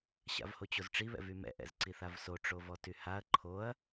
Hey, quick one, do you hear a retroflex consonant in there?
yes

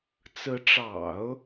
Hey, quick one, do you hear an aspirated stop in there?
no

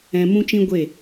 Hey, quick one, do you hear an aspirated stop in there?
no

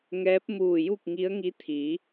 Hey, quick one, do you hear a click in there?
no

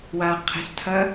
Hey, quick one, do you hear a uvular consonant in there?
yes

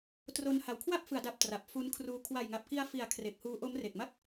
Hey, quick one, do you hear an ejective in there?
no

